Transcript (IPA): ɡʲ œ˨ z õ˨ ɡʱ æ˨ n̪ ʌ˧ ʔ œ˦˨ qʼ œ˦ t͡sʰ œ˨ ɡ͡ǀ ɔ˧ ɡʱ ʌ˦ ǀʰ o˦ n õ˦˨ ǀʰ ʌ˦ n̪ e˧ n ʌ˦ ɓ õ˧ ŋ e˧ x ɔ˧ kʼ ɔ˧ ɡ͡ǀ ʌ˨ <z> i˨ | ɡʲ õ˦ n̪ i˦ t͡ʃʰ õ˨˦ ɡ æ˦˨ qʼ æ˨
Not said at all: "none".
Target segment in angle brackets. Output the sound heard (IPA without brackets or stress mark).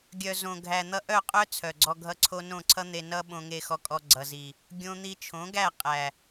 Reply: z